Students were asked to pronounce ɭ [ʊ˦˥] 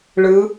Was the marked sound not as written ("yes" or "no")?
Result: yes